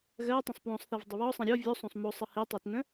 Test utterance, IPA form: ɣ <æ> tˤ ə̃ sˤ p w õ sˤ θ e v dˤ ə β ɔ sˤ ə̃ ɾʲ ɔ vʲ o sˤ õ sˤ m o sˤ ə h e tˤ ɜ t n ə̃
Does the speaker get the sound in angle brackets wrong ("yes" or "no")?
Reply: yes